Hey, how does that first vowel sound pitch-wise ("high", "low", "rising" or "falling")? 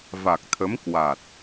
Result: low